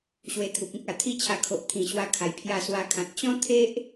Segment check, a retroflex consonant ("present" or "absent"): absent